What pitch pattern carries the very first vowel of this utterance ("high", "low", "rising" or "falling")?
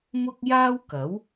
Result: high